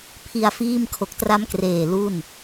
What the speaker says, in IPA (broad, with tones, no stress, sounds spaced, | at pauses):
pʰ i˧ a̯ f iː˥˩ m kʰ o˨˩ k̚ t r a˦˥ m k r eː˨˩ l u˥˩ n